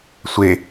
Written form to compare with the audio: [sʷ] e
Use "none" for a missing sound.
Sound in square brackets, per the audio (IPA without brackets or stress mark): sʷ